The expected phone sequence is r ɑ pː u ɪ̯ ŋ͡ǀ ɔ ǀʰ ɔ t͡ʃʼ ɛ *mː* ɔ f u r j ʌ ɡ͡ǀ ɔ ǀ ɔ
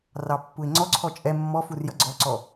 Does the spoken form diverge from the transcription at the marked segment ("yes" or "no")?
no